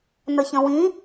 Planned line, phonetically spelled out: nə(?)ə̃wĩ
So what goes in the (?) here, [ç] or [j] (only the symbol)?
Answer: ç